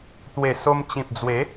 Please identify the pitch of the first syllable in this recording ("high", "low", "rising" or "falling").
low